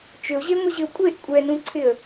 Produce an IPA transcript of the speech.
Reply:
t͡ʃʏʊ̯ʑeŋʷɪʑɪʊ̯ kʷʼeʔ kʷʼɛnũǀʰɪə̯

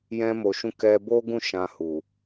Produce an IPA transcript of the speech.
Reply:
jɛ̃˧mo˨ʃũ˧ kɛ˧bo˦ɡũ˦˨ ʃã˧ hu˨

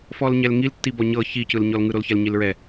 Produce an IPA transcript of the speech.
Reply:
fɔlɲɛlŋiltːi bɔɲɤ çicɯlɲɔlŋɯ ɾolçɛlɲilɹɛ

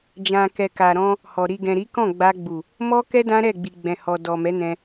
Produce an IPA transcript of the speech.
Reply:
d͡ʒã˨kɛ˨ ka˨ɾɔ̃˧ | hɔ˨ ɾi˨ɡɛ̃˨ɾi˨˦kɔ̃˦˨ ɡ͡ba˧ɡ͡bu˨ | mɔ˦kɛ˦ dã˦ɾɛ˦˨ɡ͡bi˨ ɡ͡bɛ̃˨hɔ˨ dɔ˨mɛ˨˦nɛ̃˧

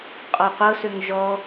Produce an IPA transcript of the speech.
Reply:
qʼɔqʷɤ søŋʒɔ

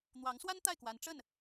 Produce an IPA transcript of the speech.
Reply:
n̪wɑ˧˥ŋswa˥n t̪a˥˩ɪ̯kwa˧˥n ʈ͡ʂə˥˩n

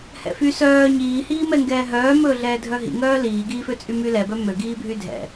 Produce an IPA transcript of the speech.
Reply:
hɛ̰fy sœː ɲiːhiːmɛŋɡɛː ɦœːmɵːɮɛː dʱœɦḭŋœː liːɡiːføt͡sʼy mylɛ bœmøɡiːbʱy dʱɛ̰

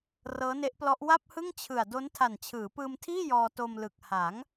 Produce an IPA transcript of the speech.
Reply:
rɤː˦˥ne˦˥ʔplɔ˦˥ʔ wa˥˩p̚hɯ˥˩ŋt͡ɕʰɯ˨˩a̯ do˦˥n tʰa˨˩nt͡ɕʰɯː˩˦pɯː˧mtʰiː˥˩ jɔː˧to˧mlɯ˨˩k̚ ha˩˦ŋ

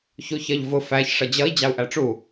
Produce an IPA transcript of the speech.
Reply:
çuçɜʎvʊ fæç ʂʌd͡ʑʌi̯ d͡ʑɑu̯ʔæʈ͡ʂu

